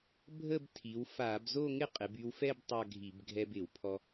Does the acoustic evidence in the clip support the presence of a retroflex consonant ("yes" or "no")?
no